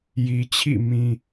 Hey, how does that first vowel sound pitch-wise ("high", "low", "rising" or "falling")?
low